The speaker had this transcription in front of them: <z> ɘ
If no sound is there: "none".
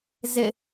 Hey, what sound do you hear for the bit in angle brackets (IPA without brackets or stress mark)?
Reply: z